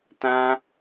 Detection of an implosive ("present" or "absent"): absent